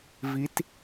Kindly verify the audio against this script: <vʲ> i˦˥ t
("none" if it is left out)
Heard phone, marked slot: v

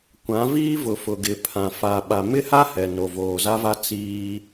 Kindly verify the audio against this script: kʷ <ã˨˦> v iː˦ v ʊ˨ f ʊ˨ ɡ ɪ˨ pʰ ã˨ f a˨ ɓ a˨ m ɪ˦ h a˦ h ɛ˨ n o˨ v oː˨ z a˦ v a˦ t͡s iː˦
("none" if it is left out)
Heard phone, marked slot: ã˨˦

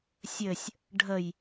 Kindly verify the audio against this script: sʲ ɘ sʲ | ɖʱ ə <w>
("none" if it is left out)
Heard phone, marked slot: j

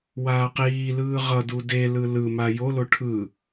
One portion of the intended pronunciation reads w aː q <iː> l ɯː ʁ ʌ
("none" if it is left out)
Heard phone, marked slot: iː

